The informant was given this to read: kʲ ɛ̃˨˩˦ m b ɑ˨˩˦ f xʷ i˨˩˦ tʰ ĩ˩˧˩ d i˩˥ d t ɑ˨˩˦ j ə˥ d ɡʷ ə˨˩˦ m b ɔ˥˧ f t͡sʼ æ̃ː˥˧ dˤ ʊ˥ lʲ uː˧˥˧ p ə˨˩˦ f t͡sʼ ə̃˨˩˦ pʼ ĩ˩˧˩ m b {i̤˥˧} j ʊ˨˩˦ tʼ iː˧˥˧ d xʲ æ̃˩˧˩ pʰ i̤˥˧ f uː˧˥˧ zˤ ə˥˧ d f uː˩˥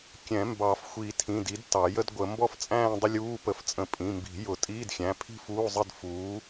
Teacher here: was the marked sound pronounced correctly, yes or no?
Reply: no